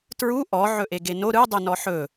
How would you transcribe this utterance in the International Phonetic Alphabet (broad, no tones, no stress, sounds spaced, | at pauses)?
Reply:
t ɹ u ʔ ɔ ʕ ɵ ʔ e ɡ e n o ɾ ɯ dˤ ɯ n ɔ ħ ɵ